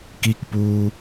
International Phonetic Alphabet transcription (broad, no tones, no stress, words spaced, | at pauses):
kikpuː